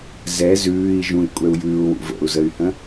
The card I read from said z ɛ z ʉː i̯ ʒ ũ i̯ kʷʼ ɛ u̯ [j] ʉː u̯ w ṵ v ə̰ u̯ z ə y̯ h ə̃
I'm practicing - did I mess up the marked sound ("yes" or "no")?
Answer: no